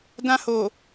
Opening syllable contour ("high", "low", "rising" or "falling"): high